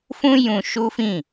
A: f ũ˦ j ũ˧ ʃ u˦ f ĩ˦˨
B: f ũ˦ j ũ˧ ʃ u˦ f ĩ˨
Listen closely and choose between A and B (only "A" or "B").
A